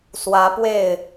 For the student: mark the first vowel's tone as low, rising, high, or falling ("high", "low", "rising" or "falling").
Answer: rising